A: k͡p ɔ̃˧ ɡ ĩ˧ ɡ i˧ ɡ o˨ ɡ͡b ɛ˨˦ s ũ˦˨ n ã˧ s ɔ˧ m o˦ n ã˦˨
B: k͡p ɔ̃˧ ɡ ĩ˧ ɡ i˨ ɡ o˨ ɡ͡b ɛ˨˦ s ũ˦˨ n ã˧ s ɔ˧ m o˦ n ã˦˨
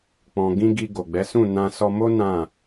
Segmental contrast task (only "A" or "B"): A